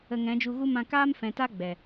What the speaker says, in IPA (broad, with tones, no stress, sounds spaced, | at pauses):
ə˧ ŋ ɛ̃˨˦ d͡ʒ u˧ ɣ u˦ m ã˧ k aː˦ m f ɛ̃˨ t a˦ ɡ͡b ɛ˨